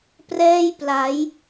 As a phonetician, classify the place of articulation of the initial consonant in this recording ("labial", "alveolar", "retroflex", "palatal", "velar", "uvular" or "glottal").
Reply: labial